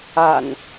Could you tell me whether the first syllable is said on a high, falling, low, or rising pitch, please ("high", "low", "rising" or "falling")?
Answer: low